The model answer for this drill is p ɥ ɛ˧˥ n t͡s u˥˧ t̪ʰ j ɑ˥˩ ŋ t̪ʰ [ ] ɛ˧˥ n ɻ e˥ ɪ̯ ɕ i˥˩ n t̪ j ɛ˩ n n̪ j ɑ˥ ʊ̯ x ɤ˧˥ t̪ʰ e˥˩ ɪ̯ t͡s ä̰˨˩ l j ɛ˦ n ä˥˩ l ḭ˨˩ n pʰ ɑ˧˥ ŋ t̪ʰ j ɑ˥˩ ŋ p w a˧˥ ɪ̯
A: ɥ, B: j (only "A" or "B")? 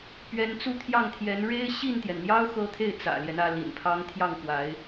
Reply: B